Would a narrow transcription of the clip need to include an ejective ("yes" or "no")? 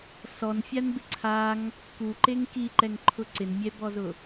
no